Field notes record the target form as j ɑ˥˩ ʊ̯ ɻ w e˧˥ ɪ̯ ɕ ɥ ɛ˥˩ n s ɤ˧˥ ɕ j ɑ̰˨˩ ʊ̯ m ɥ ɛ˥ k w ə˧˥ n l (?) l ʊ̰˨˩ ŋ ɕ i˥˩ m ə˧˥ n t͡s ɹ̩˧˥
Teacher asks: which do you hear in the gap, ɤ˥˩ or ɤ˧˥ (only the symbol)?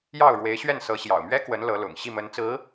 ɤ˧˥